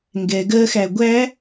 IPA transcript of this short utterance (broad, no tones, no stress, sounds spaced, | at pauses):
ŋ ɡ ɛ ɡ ɜ x æ ɡʷ æ